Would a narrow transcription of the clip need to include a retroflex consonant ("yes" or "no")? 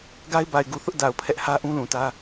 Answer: no